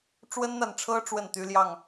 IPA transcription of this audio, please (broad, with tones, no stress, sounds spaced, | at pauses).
ʈ͡ʂ w ə˦ n n̪ a˨ n ʈ͡ʂʰ ɤ˦ ʈ͡ʂ w ə˥˨ n t̪ y˦ l j ɑ˥˨ ŋ